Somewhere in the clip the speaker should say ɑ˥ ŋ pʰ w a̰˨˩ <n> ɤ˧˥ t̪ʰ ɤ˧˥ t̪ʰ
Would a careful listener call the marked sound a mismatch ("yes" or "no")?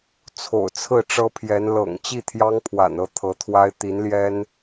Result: no